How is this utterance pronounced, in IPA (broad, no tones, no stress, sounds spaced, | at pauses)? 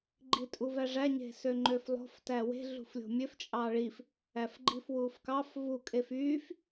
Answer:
ɡ͡ǃ i tʼ u v æ ʐ æ ɲ e̤ s ø ŋ͡ǃ ø f lˠ o̤ f t æ w e̤ ɮ ṳ f lʲ o̤ mʲ ø f t͡ʃʼ ɑ ɭ i f | æ f ɡ͡ǃ i f w uː f k ɑ f v u kʼ e f yː f